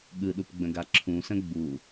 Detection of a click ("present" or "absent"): present